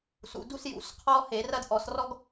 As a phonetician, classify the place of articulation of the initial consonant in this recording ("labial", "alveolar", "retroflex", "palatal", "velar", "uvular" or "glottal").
alveolar